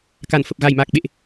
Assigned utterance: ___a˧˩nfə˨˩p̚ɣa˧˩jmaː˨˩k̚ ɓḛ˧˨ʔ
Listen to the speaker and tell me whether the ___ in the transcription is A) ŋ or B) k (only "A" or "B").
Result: B